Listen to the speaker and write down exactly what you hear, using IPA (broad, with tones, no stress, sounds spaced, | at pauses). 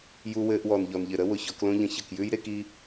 j u˧ w ɘː˧ ʔ w ɔ˨ n ʎ ɔ˨ n ʎ ɘ˨ ɾ ə˦ w ʊ˨ ç ɔ˧ k l õ˦ ʎ ə̃˧ ç ə˨ k j ʉ˦ j ɾ e˦ k i˦